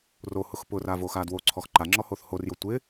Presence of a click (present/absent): present